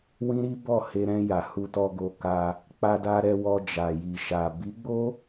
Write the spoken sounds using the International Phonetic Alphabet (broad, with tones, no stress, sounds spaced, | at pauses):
w ĩ˦ ɾ i˦ b ɔ˦˨ h e˧ ɾ ɛ̃˧ j a˨ h u˧ t ɔ˧ ɡ o˧ k a˧ | k͡p a˧ d a˧ ɾ ɛ˧ w ɔ˧ d͡ʒ a˨ j i˨ ʃ a˨ b i˨˦ ɡ͡b o˦